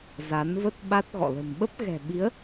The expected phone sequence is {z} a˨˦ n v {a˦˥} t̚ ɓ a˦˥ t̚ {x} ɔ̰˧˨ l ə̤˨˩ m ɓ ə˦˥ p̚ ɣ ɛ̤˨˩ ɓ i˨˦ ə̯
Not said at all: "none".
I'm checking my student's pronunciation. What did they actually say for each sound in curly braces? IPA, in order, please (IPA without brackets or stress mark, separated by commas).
z, ə˦˥, ɣ